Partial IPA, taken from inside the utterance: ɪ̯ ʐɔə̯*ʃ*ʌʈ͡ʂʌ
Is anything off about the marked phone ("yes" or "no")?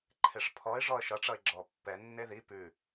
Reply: no